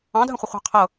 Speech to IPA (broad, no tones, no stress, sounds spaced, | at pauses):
ɑ̃ dʱ ə̃ χʷ ə χʷ ɑ̤ qʰ ɤ